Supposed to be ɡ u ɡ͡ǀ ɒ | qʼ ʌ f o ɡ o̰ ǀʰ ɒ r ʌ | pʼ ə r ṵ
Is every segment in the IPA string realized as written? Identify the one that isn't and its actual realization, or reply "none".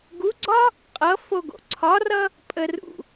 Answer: none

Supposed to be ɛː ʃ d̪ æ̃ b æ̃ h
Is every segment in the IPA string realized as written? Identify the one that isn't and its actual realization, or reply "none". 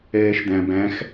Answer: h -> x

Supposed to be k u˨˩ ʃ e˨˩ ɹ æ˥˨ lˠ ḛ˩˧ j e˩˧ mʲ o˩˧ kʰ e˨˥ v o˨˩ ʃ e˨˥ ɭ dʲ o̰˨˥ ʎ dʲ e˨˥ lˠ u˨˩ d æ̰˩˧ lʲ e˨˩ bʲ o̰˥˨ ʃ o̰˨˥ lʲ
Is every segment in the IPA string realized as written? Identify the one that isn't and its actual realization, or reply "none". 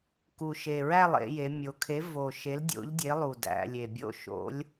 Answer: ɭ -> l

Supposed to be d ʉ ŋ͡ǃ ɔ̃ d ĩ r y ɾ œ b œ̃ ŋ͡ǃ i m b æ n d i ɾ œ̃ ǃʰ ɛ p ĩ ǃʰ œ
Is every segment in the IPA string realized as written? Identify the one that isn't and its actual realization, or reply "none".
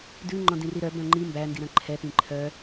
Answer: y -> i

